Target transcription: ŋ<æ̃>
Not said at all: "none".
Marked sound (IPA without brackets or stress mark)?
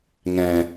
ɛ̃